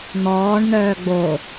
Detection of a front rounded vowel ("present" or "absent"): present